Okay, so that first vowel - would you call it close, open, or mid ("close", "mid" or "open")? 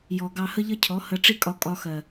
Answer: mid